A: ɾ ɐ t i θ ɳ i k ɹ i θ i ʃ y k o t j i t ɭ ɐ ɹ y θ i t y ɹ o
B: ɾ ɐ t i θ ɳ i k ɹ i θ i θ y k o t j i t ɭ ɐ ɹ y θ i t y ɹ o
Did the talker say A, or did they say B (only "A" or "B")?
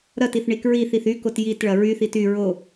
B